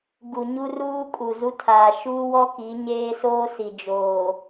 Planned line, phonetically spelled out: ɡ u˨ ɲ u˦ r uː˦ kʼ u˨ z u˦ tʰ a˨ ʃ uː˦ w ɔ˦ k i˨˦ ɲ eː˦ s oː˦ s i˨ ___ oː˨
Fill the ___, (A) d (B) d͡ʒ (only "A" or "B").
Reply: B